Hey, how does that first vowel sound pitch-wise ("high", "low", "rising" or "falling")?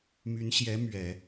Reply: rising